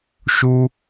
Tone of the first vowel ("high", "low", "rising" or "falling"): high